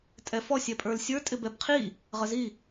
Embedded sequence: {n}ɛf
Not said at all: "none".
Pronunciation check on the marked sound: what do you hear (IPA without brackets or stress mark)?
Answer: tʼ